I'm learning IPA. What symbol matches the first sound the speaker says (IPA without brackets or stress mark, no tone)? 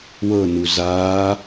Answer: w